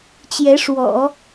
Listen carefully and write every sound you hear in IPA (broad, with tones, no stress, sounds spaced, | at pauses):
t͡ɕ j ɛ˧˥ ʂ w ɔ̰˨˩˦